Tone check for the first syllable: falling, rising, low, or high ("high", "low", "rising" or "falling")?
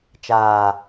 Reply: low